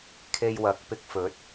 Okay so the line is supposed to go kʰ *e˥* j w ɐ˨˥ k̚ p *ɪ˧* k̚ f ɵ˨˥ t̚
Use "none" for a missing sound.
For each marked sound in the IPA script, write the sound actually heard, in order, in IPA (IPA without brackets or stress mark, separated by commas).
e˧, ɪ˧